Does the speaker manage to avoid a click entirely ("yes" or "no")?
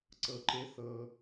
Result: no